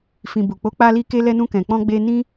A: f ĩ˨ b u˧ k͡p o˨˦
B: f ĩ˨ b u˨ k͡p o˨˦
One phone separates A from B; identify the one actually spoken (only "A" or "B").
B